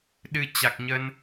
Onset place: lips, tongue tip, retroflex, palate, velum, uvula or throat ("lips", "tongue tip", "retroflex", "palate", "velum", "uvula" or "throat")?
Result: tongue tip